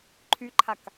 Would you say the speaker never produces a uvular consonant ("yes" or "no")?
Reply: yes